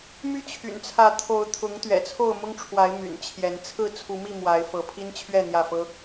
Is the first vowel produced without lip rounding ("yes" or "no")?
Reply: no